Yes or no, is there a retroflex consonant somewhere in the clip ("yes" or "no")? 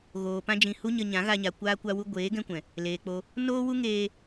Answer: no